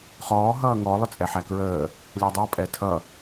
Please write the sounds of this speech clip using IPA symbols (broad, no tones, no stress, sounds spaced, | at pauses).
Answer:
χ ɔː ɦ ʌː ŋ ɔ lˠ ʊ t͡sʼ ɛ ħ æ k ɹ əː | lʲ æ dˤ ʌ pʼ ɛ tʰ ʌ